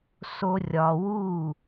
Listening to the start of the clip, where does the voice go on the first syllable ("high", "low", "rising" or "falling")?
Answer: high